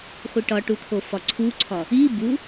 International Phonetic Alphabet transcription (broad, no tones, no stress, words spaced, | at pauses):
χʷiʈɒʈu t̪ʰofɒǀʰuǀʰɒ | i bu